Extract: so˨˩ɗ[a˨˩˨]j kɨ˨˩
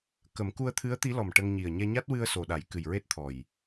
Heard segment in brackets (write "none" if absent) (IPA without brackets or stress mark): a˨˩˦